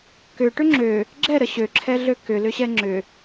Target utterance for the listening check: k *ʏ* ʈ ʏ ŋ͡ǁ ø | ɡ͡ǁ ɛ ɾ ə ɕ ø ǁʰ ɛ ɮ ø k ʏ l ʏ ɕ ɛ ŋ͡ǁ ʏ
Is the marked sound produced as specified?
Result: yes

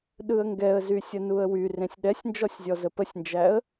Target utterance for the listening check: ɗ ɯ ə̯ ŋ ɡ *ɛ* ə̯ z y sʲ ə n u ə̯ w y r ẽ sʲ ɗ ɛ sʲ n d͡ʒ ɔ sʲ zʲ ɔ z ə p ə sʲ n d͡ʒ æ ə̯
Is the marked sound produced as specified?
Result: yes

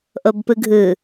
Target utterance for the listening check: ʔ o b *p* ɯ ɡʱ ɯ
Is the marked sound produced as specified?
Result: yes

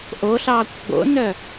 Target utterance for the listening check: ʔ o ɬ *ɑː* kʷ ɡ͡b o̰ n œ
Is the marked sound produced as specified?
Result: yes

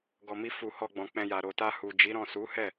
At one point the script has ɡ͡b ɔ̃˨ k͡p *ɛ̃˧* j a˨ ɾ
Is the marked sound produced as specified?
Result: yes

